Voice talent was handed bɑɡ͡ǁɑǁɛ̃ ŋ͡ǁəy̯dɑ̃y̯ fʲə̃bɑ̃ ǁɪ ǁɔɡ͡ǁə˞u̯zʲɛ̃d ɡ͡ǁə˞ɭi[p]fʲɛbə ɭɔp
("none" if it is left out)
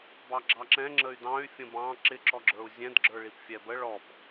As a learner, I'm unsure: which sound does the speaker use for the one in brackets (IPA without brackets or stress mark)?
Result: p